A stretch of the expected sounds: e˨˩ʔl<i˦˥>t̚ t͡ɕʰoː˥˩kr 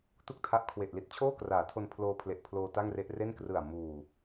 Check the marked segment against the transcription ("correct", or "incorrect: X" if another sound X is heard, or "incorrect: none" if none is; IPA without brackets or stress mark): incorrect: i˥˩